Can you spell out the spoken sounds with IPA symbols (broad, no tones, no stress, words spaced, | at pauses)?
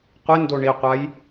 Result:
qʷɪndo ɳiqʷaj